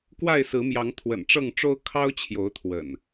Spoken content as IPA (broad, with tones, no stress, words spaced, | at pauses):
kwa˥˨ɪ̯sɹ̩˨˦mjɑ˨˦ŋ t̪ʰwə̰˨˩nʈ͡ʂɤ˥˨ŋʈ͡ʂo˦ʊ̯ kʰɑ˦ʊ̯ t͡ɕʰjo˨˦ʊ̯t̪ʰwə̰˨˩n